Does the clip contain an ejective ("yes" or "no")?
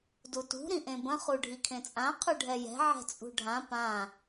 yes